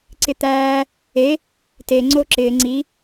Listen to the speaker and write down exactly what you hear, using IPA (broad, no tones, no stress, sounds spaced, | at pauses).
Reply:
ǀ ɪ t̪ æː | e | t e ŋ͡ǀ o ǁ ɪː ŋ͡ǀ i